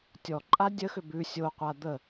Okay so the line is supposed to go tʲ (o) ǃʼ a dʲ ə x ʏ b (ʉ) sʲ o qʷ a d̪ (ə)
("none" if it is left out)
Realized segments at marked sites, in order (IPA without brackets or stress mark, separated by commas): ɔ, ʉ, ə